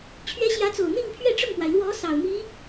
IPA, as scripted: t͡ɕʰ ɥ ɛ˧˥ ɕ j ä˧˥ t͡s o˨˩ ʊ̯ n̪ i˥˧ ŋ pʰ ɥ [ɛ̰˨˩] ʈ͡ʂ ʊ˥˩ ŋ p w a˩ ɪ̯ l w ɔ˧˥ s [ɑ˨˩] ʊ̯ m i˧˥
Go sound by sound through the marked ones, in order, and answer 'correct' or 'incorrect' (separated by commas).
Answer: incorrect, correct